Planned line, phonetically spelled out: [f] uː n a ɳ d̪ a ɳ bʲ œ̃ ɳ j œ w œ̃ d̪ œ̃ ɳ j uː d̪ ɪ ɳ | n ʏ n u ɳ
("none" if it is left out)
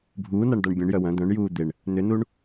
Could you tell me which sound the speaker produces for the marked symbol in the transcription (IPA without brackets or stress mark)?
bʱ